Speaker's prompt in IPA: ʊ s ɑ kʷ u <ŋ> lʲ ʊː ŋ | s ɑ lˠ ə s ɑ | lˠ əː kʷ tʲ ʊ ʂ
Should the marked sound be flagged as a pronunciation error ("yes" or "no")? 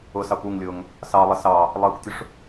no